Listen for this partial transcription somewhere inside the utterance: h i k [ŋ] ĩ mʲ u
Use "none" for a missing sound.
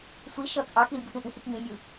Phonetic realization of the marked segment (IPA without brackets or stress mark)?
ŋ